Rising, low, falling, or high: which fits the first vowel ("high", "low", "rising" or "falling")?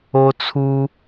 high